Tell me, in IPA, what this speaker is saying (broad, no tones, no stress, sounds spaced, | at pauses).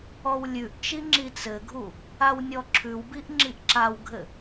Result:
ɔ w lʲ ʉ ʔ t͡ʃ i ŋ͡ǁ i t͡s ɘ ɡʱ u | a w nʲ ɔ ǁʰ ʉ w b i ʔ ŋ͡ǁ i ʔ ǁ a w ɡʱ ɘ